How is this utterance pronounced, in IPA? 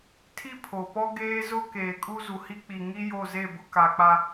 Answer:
tʰi˦pʰo˨pɔ˦ ɡeː˦zʊ˦ keː˨kʼu˦zu˨hi˦ k͡pi˨ŋi˦ jo˦˨ze˦˨bʊ˦ ka˨k͡pa˦

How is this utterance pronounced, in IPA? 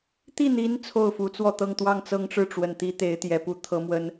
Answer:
t̪i˥˩n̪i˧˥n t͡sʰo˥˩ʊ̯fu˧˥t͡swɔ˥˧t̪ɤ˥˧ŋ t̪wɑ˥˩ŋt͡sɤ˥ŋʈ͡ʂɻ̩˥˩ʈ͡ʂwə˨˩n t̪i˥t̪e˧˥ɪ̯t̪jɛ˧˥pu˥˩ t̪ʰɤ˥mwə˥n

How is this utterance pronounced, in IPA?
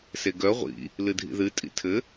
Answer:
seɡœ ʁʷḭ | lɨdʱḭðɨ tʼḭtʰɘ

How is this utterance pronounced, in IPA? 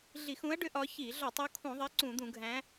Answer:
ɮi˧˩˧xũ˨˦ɐ̯ɖʏ˨˦ ʔɒ˨˦ çi˧˩˧ ɮɒ˧˩˧tˤu˨˦kʰũ˧˩˧ðˤɛ˨˦ ǀũ˧˩˧d̪ũ˧˩˧ɡʱæ̃˨˦

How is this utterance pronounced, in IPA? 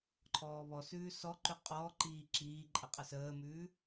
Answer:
ǃʰɔːβɔsʉː sɔǃʉ qʼɔːǃiː ǁiːǃʼə qʼəsəːmʉː

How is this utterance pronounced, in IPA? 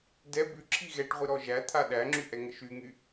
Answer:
dɛ bʉǁʰi ɣɛʈʁʷi ɾɔʒæt̪ʰa ɗæŋ͡ǁy ʔɛŋəʃyŋy

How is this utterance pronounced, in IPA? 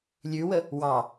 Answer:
lʲʉwə | wɑ

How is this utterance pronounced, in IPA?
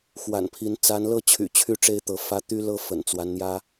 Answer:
xwa̰˨˩npʰi˨˦n t͡sa˨˦nlɤ˦t͡ɕʰy̰˨˩t͡ɕʰy˥˨ ʈ͡ʂe˦ɪ̯t̪ɤ˨˦fä˦ t̪y˦lɤ˦ fə̰˨˩nt͡swa˦nn̪jä˦

